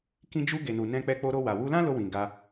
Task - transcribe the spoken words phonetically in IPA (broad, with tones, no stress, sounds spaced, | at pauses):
k ĩ˧ d͡ʒ u˧ ɡ e˨ n u˨ n ɛ̃˧ k͡p ɛ˧ k͡p o˧ ɾ o˧ w a˨ w u˧ l ã˦ l o˧ w ĩ˨ ɡ a˧